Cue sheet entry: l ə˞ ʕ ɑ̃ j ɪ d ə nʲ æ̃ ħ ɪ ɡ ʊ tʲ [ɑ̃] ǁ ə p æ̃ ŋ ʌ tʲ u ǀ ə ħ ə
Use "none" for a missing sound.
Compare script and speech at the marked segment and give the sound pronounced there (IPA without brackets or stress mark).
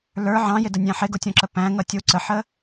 ɔ̃